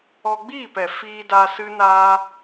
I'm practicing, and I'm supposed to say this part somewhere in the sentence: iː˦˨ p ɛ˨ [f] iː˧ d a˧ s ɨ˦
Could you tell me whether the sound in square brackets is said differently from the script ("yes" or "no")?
no